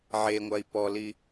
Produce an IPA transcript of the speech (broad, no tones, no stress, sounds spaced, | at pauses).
ʕ e ŋʷ a i̯ p ɔ l i